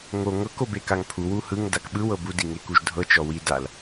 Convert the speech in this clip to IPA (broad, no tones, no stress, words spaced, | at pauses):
ŋo ŋɤk obekaŋpʰu wuhɯŋ dakɓɯw ɤbud iŋekuʒdʱɤ t͡ʃɔwi dal